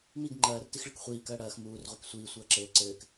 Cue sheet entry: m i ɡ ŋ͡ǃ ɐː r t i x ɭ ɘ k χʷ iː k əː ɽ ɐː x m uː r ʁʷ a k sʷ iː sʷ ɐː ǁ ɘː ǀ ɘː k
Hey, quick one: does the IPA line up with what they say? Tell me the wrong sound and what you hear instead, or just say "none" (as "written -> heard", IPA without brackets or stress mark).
əː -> ɐː